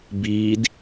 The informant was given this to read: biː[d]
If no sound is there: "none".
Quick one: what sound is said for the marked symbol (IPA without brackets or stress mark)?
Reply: d